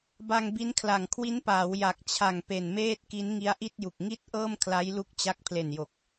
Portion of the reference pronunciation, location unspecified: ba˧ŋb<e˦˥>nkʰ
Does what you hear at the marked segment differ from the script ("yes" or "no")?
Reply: yes